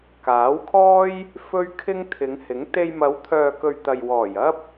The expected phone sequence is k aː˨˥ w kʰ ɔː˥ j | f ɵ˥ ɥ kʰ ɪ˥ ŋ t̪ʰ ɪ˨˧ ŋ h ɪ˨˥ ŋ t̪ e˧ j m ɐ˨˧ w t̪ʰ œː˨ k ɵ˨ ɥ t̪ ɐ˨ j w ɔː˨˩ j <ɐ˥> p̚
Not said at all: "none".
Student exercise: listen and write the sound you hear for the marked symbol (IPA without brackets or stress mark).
ɐ˥